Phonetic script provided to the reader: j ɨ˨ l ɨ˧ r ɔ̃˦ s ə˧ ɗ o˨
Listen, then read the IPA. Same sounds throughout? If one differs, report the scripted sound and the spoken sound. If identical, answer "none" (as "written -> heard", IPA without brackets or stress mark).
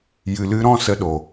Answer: r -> ɾ